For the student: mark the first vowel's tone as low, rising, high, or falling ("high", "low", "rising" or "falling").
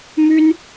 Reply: high